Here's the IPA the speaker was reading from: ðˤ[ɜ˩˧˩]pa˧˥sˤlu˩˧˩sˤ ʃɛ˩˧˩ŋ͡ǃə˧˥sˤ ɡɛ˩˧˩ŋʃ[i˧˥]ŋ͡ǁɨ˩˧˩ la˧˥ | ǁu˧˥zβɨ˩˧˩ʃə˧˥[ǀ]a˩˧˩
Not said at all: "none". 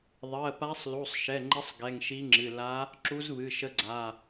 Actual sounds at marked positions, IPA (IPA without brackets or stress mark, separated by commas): ɜ˩˧˩, i˧˥, ɡ͡ǀ